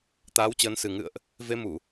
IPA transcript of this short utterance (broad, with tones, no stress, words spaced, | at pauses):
t̪aː˨˦wt͡ɕəː˨˦nsɨ˨˩ ŋɨ̰˧˨ə̯ʔ | ve˧mu˧˩˨